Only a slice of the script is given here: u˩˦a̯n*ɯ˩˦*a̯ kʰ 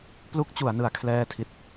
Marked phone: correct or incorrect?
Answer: correct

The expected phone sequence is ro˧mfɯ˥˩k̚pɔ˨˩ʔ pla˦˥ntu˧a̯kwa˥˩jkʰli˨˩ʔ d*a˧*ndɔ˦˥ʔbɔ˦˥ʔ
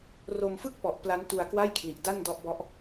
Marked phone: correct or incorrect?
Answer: incorrect: a˥˩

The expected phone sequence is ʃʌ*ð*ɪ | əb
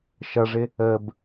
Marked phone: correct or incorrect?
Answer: incorrect: ʐ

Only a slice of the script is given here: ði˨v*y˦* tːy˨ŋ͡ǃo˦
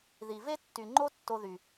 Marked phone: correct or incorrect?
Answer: incorrect: e˦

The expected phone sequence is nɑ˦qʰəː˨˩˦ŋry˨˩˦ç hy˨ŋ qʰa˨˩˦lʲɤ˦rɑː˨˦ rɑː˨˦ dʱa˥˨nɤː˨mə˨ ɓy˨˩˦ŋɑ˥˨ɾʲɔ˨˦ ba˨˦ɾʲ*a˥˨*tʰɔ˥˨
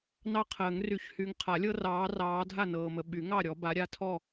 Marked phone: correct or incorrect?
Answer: correct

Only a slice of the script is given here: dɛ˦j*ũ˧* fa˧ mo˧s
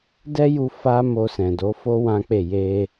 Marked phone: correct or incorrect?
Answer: incorrect: u˧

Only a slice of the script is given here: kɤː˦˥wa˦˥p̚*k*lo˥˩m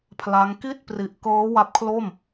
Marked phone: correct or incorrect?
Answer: incorrect: kʰ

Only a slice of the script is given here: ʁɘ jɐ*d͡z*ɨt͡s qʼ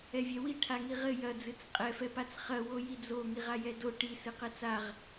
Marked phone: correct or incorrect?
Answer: correct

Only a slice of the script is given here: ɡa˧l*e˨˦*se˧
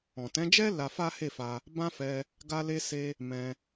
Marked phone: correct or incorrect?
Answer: incorrect: e˧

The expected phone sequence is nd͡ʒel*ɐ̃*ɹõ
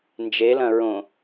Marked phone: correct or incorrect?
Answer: correct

